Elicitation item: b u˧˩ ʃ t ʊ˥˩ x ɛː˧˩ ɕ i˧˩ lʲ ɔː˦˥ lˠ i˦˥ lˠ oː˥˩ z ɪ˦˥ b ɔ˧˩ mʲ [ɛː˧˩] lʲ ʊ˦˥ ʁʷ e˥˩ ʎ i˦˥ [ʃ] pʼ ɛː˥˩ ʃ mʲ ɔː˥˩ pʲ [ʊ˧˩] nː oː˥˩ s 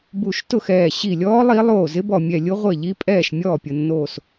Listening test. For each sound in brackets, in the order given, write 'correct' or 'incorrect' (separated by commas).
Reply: incorrect, incorrect, correct